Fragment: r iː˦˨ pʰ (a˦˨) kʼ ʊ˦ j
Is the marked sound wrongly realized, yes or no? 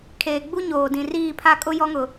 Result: no